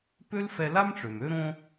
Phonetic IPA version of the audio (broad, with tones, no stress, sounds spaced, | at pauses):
p ø˥ l f ɛ˧ l a˥ m ʈ͡ʂ ø˩ m ø˥ ɾ õ˥